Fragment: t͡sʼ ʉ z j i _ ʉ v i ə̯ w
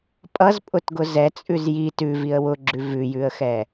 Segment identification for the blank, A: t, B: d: A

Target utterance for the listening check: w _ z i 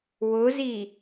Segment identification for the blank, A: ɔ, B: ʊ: B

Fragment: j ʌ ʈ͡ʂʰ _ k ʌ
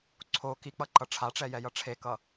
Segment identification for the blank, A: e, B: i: A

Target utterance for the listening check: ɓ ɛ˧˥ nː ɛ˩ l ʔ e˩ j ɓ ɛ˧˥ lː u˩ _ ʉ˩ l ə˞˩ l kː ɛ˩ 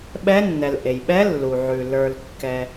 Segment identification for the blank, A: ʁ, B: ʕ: B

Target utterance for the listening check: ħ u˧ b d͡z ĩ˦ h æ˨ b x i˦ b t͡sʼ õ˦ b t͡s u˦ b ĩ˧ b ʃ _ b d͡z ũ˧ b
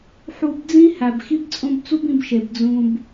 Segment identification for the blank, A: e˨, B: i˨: A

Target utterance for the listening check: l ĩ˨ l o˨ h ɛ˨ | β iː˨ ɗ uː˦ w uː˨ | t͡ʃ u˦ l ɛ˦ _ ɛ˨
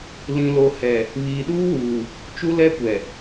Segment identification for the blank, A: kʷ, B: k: A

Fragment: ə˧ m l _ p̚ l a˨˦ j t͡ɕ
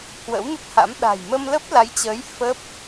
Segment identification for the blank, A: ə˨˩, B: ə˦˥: B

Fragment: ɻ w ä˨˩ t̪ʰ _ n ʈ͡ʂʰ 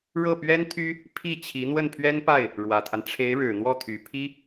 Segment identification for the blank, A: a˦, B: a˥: A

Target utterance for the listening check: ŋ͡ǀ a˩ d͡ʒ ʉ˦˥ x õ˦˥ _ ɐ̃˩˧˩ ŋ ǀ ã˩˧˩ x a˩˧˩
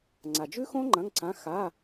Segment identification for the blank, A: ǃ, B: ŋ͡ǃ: B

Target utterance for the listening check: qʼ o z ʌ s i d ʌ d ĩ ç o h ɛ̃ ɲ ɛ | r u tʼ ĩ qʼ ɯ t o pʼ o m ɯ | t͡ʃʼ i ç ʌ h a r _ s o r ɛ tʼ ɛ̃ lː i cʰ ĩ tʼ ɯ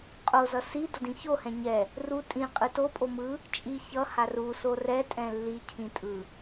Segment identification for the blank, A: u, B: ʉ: A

